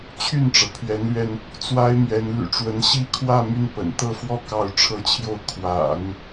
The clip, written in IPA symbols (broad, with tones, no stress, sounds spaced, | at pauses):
t͡ɕʰ y˥˩ n ʈ͡ʂ ɤ˩ pʰ ɥ ɛ˧˥ n l ɥ ɛ˧ n | t͡s w a˥ ɪ̯ m ɥ ɛ˧˥ n l y̰˨˩ ʈ͡ʂ w ə˧˥ n ɕ i˥ kʰ w ä˥˧ m y˥˩ n p ə̰˨˩ n t̪ ɤ˥˧ f w ɔ˥˧ k ɑ˥˧ ʊ̯ ʈ͡ʂʰ ɤ˥˧ t͡ɕʰ j o˥˩ ʊ̯ kʰ w a̰˨˩˦ n